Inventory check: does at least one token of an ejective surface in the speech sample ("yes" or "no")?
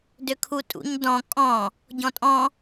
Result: yes